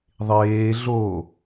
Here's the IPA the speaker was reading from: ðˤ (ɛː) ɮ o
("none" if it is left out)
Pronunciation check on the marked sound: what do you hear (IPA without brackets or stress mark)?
eː